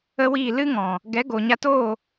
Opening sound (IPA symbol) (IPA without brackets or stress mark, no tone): ə